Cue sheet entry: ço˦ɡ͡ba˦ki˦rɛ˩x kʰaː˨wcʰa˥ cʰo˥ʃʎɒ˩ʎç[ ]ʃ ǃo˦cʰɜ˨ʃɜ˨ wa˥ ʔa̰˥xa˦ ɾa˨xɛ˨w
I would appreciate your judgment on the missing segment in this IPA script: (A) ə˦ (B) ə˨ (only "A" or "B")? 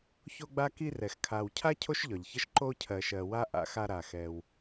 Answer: A